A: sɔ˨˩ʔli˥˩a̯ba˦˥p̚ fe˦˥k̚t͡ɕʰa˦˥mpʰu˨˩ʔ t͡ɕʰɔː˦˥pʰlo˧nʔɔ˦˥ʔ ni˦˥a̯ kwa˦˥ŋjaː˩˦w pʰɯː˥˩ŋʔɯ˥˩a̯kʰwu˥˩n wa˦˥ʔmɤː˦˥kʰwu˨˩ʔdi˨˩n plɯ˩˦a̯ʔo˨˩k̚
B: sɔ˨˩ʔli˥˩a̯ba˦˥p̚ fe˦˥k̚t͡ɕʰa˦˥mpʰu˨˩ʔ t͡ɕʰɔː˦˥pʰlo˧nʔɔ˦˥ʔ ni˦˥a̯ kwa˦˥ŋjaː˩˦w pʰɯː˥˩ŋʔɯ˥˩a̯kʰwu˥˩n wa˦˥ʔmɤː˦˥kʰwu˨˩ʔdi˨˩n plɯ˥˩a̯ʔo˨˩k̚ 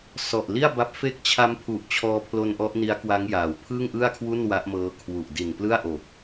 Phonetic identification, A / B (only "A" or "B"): B